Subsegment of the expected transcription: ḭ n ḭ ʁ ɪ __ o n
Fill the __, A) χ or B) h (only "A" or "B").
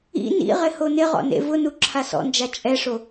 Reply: B